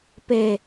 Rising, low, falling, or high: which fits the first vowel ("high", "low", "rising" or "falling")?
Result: low